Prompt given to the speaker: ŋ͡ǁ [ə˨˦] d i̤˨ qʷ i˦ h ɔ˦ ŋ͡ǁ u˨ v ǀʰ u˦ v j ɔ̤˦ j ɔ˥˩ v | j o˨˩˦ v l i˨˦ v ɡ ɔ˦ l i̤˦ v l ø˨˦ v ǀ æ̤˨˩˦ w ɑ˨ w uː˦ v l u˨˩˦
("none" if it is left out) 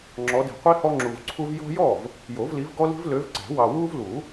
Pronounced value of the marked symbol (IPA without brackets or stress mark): ɔ˨˦